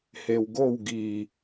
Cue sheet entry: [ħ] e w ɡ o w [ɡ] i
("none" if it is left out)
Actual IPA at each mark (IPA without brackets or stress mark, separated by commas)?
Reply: h, ɡ